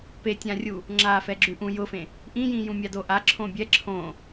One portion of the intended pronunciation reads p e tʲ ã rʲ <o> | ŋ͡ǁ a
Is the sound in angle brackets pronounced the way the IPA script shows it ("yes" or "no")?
no